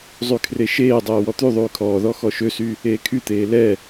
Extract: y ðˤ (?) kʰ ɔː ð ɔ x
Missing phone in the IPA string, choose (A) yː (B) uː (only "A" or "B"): A